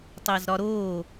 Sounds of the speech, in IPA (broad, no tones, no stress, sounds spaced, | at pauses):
tˤ æ z ɾ ɒ ɾ oː